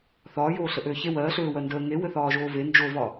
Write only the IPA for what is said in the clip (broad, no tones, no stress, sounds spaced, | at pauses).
θ ɒː j oː ɬ ə ʔ øː ç e w ɜː ɬ øː w ɜ n d əː ŋ e w ɘ θ ɒː ʒ oː v e n d͡ʒ o v ɒ